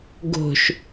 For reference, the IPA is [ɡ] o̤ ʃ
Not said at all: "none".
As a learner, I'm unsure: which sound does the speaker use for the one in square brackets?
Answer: ɡ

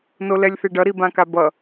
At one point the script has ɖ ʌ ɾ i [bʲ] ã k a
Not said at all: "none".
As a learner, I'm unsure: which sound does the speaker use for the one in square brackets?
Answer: b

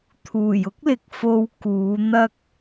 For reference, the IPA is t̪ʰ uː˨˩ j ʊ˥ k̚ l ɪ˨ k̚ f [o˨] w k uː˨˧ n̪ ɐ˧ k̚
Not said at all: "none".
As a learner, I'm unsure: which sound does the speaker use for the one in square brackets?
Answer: o˧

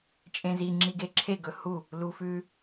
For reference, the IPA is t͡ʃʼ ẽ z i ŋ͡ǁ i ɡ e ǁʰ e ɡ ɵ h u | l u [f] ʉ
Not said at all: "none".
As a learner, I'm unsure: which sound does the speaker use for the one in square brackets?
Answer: f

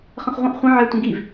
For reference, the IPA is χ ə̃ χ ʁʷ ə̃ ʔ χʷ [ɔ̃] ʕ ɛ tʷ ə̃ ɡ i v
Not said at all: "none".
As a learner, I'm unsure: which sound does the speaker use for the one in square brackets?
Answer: ə̃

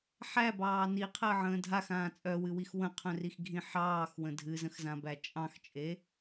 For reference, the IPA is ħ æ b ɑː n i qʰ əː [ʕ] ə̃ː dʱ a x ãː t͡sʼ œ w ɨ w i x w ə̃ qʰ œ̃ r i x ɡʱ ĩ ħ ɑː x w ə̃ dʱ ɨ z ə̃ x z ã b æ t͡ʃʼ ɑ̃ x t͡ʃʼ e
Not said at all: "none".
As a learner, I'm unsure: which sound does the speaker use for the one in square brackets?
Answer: ʕ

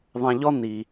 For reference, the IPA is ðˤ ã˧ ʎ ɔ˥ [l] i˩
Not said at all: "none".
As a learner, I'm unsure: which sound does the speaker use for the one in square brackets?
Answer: n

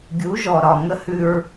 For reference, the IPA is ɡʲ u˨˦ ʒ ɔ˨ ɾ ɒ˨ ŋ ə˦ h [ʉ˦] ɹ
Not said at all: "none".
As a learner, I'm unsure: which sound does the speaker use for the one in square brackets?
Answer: ʉ˦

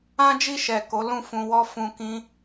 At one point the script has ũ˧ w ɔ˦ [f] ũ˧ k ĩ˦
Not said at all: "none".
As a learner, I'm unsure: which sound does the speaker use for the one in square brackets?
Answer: f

